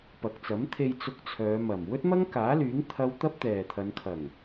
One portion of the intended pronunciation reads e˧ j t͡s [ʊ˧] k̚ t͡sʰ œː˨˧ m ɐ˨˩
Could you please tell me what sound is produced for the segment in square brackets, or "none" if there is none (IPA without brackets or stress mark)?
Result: ʊ˧